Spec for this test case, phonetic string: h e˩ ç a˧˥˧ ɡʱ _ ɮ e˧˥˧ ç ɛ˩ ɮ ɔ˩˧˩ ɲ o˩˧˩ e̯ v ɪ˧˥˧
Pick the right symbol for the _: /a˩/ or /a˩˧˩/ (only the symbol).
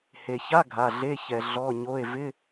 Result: a˩˧˩